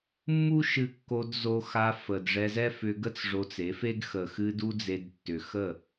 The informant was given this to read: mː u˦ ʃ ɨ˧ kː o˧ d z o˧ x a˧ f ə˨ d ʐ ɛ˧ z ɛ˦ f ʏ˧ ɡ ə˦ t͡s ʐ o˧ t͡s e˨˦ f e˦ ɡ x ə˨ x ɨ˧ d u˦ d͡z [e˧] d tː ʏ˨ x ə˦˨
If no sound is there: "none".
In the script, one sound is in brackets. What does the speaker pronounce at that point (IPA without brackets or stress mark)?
e˧